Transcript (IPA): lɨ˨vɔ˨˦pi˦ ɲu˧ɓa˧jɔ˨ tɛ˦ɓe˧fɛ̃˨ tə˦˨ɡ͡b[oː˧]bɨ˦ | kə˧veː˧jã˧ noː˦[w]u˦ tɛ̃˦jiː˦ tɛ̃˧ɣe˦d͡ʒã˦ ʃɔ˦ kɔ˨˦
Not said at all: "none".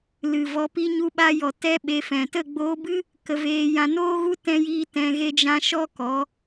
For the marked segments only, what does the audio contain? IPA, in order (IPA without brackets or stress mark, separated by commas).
oː˧, ɣ